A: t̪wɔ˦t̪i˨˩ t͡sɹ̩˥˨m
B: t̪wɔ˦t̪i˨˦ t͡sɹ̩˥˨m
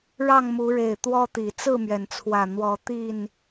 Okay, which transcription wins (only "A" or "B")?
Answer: A